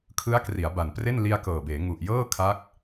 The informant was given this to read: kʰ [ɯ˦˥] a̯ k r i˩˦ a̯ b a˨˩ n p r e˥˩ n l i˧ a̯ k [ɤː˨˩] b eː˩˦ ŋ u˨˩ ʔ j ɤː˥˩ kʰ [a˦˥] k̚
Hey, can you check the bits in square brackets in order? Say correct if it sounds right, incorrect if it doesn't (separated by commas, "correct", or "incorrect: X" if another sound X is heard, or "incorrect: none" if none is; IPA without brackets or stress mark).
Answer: correct, correct, correct